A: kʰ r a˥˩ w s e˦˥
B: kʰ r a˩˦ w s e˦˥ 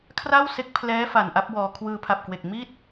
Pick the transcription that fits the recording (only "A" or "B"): A